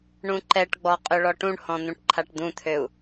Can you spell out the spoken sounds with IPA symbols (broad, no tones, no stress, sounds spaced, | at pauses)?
ɳ ũ ǃ ɛ ʈ ɡ͡b ɔ qʼ ø ɭ ɔ ʈ ũ ɳ h ɔ̃ n̪ ũ ʈ ǃʰ a ʈ d̪ ũ t̪ʰ ø u̯